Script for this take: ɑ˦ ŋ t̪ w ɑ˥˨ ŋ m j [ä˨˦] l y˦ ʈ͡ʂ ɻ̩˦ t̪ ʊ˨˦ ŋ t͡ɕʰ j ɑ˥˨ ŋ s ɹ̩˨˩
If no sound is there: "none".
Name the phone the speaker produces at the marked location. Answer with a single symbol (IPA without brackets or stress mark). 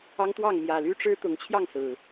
ä˨˩